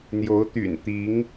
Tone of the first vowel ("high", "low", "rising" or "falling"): rising